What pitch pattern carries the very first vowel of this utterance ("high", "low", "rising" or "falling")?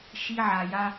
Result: high